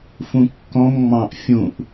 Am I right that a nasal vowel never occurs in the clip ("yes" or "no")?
no